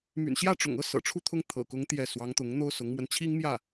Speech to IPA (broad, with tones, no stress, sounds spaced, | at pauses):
m y̰˨˩ n ɕ j ä˥˩ ʈ͡ʂ ʊ̰˨˩ ŋ ɤ˥ s ɤ̰˨˩ ʈ͡ʂʰ u˥˩ t̪ʰ ʊ˥ ŋ t̪ʰ ɤ̰˨˩ k ʊ˧˥ ŋ t̪ j ɛ˥˩ s w ɑ˧˥ ŋ t̪ ʊ˧˥ ŋ n̪ o˥ ʊ̯ s ʊ˧˥ ŋ m w ə˧ n t͡ɕʰ i˥ ŋ m j ä˥˩